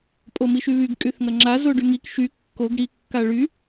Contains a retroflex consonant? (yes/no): yes